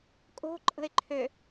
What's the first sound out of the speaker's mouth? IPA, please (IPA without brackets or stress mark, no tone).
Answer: kʼ